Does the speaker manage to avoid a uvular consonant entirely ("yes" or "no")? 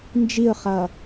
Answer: no